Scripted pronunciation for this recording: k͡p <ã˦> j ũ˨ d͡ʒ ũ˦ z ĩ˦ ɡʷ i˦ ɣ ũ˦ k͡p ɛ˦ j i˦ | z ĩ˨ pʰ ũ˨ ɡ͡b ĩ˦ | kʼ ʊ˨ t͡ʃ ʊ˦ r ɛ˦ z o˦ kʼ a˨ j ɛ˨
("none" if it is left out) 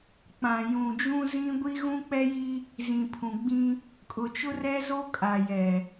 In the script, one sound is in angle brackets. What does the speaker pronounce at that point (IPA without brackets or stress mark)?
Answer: ã˨